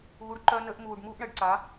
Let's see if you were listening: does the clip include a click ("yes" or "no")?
yes